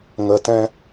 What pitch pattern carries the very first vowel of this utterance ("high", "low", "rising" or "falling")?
low